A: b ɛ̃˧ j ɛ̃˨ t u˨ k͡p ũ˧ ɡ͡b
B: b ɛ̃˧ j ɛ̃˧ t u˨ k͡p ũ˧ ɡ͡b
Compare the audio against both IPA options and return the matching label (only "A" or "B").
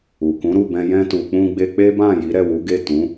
B